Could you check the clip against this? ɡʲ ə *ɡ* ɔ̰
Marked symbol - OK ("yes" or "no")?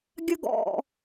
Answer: yes